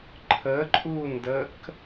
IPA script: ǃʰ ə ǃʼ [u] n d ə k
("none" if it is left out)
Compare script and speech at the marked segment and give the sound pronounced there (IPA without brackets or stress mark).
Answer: u